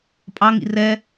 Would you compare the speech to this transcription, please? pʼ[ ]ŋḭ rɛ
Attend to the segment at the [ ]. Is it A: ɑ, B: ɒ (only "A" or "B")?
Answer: A